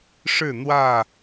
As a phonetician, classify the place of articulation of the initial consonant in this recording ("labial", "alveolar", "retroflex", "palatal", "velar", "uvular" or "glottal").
retroflex